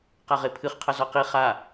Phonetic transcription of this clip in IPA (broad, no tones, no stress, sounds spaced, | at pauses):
q a ʁ e pʰ ɨ χ qʰ ɐ z ɔ q i χ a